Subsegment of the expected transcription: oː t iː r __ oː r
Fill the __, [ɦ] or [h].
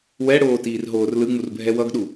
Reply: ɦ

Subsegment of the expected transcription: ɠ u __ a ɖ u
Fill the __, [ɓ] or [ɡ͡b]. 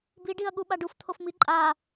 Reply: ɓ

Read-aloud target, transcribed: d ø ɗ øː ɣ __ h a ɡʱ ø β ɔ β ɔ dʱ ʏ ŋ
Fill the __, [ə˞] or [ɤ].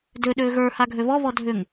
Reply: ə˞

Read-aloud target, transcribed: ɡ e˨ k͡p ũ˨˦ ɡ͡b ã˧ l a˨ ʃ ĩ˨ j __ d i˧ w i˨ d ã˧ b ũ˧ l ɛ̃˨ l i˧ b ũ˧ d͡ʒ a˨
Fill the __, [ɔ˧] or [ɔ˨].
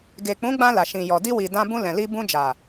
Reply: ɔ˨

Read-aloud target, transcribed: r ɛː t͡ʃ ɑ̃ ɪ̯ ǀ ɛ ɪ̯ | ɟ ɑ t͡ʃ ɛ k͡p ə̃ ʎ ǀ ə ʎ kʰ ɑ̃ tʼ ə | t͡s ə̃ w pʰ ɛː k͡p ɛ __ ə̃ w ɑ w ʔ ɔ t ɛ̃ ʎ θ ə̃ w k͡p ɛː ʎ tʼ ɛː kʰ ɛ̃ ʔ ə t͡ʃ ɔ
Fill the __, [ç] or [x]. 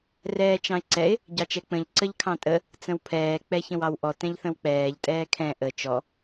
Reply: ç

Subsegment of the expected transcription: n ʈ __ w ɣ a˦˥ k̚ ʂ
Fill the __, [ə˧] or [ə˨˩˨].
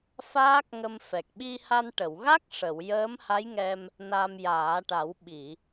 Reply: ə˨˩˨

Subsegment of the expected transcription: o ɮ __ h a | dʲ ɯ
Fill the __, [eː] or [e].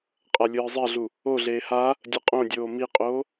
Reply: eː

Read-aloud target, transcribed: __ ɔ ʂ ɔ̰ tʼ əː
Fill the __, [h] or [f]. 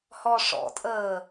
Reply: h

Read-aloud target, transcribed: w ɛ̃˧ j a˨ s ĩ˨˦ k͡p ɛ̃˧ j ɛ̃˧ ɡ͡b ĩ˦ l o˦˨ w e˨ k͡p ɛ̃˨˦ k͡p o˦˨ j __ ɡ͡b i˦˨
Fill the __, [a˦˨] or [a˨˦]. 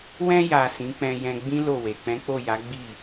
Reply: a˨˦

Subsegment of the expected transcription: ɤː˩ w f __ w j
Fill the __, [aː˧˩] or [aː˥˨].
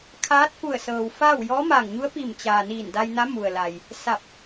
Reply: aː˥˨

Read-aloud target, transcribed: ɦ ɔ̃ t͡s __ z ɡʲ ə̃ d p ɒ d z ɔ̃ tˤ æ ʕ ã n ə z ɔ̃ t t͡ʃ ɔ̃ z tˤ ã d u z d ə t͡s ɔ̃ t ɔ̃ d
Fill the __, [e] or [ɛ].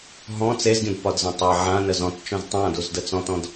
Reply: e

